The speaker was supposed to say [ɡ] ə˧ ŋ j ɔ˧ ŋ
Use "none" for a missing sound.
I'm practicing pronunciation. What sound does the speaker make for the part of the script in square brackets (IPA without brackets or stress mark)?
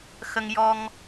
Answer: x